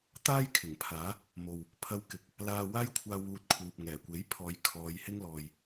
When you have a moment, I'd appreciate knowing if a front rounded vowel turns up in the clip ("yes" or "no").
no